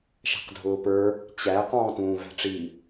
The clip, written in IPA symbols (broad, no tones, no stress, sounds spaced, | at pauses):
ʃ æ̤ q dʱ ʊː p ə˞ | t͡ɕ æ q ɔ̃ː t ũː v æ̤ ʈ͡ʂ i